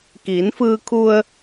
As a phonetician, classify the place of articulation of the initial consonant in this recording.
velar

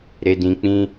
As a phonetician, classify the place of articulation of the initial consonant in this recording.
alveolar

